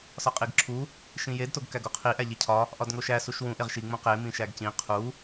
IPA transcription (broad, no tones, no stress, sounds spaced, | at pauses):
s ɒ qʼ i ɡ ǁʰ u | ʃ ĩ j e d t o ɡ k æ ɡ o qʰ i ʔ æ ʎ e cʰ ɒ | ʔ ɒ d ŋ o ʃ æ s u ʃ w ũ ʔ e ʁ ʃ i ŋ͡m ũ q e m ĩ ʃ æ ɡ c ĩ qʰ u